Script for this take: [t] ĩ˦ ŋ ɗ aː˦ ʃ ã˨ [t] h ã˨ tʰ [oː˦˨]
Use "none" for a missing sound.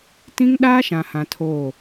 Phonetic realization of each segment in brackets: t, none, oː˦˨

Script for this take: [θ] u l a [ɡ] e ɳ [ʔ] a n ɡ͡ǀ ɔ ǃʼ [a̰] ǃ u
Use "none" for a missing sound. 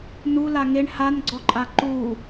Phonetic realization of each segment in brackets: n, ŋ, h, a

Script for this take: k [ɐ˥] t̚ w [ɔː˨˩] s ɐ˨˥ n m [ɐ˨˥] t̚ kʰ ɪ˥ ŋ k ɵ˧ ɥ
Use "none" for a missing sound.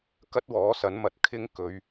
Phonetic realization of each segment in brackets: ɐ˥, ɔː˨˥, ɐ˨˥

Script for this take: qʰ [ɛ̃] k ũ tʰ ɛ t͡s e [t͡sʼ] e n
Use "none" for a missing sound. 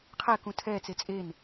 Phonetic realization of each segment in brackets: ɛ, t͡sʼ

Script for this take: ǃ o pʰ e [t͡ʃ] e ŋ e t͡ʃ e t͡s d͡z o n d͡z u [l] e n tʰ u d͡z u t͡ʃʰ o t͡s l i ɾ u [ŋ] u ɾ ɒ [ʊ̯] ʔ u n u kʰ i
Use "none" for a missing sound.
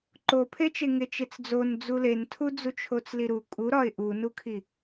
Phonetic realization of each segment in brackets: t͡ʃ, l, kʼ, ɪ̯

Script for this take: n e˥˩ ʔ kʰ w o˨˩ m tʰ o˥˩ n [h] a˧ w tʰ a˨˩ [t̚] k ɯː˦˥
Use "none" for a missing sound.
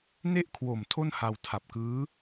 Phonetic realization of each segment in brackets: h, p̚

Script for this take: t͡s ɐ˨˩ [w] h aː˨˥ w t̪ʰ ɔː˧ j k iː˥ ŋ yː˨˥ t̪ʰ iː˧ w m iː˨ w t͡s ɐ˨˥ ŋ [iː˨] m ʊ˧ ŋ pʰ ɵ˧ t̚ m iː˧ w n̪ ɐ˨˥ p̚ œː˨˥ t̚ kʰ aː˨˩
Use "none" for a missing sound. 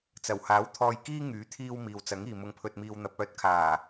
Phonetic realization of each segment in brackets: w, iː˨

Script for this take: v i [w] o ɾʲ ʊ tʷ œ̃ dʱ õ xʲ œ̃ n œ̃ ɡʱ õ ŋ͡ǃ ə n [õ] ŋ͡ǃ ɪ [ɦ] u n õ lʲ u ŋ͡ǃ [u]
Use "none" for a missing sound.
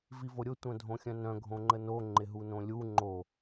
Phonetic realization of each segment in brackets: v, o, ɦ, o

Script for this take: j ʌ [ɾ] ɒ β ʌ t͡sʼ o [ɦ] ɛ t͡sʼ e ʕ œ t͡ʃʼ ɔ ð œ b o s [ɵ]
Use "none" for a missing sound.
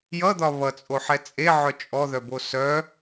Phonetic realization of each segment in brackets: d̪, ħ, œ

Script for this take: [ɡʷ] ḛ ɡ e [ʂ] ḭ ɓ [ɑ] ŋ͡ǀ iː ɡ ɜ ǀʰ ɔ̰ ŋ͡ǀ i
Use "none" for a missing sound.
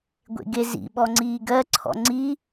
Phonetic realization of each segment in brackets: ɡʷ, z, ɔ

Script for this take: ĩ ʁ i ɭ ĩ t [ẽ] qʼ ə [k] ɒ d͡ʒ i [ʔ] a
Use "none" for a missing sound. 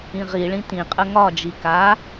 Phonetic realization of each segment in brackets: ĩ, ŋ, k

